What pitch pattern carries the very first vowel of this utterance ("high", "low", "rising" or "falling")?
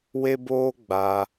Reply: high